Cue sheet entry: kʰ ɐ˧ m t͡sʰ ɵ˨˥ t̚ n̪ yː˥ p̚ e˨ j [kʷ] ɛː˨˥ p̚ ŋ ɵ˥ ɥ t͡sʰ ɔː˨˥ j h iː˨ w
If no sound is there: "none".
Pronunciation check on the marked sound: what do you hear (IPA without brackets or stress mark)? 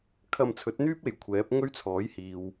kʷʰ